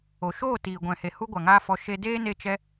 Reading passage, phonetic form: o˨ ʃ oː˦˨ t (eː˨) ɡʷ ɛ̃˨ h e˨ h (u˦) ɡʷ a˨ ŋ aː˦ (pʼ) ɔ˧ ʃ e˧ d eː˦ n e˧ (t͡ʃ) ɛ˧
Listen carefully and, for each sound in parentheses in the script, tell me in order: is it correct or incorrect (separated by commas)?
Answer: incorrect, correct, incorrect, correct